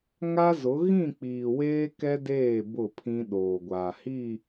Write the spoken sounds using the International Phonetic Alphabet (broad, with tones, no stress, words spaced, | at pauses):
ŋa˦zʊ˨˦ ɣĩ˦˨k͡piː˨weː˦ kɛ˦deː˦˨ bʊ˦˨pʰĩ˦ ɗoː˨ɡʷaː˨hi˦˨